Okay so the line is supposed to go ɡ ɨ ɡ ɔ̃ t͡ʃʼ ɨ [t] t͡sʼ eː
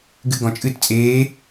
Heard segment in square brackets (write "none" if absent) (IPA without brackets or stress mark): t